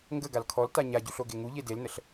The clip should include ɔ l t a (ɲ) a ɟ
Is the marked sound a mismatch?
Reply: no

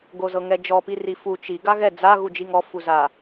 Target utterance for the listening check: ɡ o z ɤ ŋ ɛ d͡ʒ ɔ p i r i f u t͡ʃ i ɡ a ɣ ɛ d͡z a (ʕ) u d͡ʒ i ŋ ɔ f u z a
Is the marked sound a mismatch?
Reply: yes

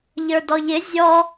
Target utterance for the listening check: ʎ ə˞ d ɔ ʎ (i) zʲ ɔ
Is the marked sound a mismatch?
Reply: yes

